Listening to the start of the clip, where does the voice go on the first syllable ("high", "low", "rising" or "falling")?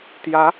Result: rising